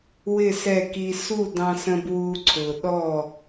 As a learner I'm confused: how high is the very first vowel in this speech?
high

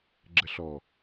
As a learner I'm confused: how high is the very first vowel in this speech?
mid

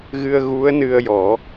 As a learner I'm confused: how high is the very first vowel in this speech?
high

